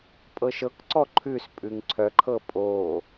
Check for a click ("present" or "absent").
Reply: present